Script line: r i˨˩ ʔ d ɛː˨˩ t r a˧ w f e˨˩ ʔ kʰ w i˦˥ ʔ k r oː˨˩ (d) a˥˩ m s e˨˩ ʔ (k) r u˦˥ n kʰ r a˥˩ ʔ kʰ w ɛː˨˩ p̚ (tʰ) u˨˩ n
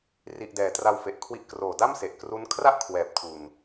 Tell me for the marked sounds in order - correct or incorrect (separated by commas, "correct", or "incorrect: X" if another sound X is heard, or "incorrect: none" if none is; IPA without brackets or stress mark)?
correct, correct, correct